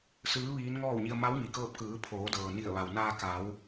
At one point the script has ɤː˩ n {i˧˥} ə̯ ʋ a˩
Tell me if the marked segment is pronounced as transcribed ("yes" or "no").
no